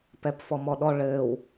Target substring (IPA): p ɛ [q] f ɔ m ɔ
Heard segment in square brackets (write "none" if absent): p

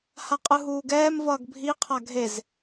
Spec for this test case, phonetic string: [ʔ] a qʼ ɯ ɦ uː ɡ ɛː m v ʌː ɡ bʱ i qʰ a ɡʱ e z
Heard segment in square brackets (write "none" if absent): h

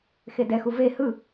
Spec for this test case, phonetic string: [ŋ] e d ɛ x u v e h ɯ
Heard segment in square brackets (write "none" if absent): x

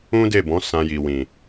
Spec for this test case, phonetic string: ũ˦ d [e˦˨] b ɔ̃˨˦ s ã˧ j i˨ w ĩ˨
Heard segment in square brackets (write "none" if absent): e˦˨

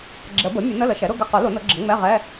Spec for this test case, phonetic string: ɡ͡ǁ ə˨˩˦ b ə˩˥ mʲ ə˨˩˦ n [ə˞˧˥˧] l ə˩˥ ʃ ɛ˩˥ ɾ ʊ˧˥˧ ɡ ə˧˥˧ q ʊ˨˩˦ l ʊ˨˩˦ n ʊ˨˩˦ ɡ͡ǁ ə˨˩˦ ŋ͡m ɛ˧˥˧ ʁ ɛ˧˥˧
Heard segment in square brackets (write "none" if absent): ə˧˥˧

